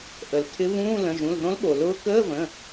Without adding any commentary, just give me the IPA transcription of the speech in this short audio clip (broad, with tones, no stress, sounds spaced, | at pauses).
ʔ ə˩ l tʰ ɪ˧˥ β ũː˧˥˧ l ə̃˩˧˩ ʒ ũ˩˧˩ l ð õ˧˥ l ɠ o˩ l ʊː˧˥ k əː˧˥˧ v ə̃˩˧˩